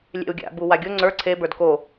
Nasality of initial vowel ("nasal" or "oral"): oral